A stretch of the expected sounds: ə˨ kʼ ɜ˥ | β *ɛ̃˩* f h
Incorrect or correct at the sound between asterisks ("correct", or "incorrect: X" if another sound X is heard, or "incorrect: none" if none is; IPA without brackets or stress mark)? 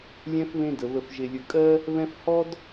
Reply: incorrect: ɛ̃˦